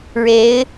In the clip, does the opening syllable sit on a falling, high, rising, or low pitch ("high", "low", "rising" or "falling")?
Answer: rising